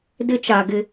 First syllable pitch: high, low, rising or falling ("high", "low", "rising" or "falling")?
high